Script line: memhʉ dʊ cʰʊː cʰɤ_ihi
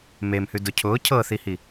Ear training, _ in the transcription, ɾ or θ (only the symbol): θ